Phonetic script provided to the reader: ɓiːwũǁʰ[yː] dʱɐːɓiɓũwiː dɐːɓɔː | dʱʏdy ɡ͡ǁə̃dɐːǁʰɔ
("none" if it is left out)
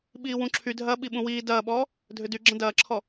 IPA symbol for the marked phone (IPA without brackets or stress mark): y